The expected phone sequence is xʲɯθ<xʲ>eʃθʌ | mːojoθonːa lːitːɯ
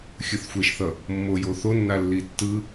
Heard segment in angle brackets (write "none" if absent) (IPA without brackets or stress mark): xʷ